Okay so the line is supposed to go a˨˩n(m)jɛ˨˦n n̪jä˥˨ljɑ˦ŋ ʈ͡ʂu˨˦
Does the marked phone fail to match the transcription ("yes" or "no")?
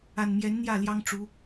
no